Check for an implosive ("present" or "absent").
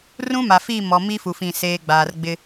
absent